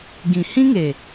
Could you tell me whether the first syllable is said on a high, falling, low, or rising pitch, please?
low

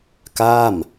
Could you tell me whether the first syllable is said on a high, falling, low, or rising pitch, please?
falling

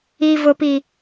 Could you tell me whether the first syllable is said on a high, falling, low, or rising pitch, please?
low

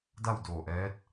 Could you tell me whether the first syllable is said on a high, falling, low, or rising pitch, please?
falling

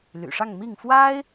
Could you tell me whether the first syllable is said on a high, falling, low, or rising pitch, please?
low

